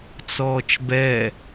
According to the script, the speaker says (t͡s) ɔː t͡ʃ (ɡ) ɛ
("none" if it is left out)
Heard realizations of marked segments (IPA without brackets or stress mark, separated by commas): t͡s, b